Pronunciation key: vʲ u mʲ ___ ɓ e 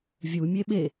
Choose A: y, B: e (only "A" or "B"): B